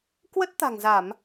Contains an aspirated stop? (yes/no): no